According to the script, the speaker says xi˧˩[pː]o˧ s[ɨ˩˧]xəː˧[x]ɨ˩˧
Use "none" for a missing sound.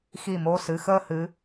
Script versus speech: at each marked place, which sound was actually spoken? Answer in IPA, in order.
m, ɨ˩˧, h

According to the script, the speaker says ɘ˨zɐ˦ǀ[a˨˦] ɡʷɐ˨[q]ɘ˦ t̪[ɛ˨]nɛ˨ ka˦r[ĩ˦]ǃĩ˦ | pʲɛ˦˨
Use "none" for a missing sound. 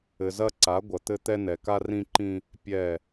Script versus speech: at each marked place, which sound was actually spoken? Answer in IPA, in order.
a˨˦, t̪, ɛ˦, ĩ˦

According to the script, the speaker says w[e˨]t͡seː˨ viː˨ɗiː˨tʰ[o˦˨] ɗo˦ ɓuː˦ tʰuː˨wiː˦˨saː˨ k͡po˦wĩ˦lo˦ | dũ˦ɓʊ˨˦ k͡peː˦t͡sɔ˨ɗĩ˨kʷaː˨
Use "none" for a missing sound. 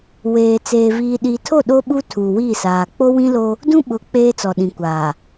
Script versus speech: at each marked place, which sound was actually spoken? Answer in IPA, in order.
eː˨, o˦˨

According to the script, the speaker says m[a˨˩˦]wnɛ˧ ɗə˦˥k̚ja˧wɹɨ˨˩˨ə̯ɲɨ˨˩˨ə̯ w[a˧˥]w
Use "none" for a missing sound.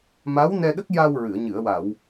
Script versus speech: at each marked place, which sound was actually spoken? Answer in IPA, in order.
a˧˥, a˨˩˨

